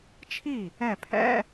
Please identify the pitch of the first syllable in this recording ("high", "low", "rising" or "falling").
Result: falling